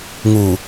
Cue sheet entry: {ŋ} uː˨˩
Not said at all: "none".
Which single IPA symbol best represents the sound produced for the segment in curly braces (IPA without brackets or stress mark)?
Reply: ŋ